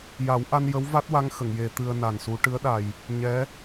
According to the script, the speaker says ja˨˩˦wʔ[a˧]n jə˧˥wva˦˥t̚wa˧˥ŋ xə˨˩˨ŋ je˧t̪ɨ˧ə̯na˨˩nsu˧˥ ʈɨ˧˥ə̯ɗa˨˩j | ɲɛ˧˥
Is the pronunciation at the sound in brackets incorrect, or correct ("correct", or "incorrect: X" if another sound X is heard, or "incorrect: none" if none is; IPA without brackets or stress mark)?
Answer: correct